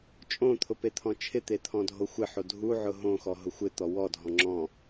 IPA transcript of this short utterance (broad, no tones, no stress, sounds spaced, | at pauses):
t͡ʃʼ õ t̪ʰ ʊ p e t̪ʰ ɔ̃ t͡ʃʰ ɪ t̪ e t̪ʰ ɔ̃ dʱ o xʷ ɪ ħ o dʱ u ʕ ʊ ɦ õ x ɔ ɦ ʊ xʷ ɪ t̪ ɔ w ɔ dʱ ɔ̃ ŋ͡ǁ ɔ̃